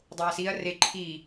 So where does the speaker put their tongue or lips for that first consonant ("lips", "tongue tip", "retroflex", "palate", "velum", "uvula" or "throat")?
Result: tongue tip